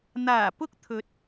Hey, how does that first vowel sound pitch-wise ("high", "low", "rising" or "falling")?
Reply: low